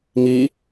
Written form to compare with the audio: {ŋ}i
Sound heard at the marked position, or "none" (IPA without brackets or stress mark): ŋ